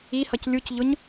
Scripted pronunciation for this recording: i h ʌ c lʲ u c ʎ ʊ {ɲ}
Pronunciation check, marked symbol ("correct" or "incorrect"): correct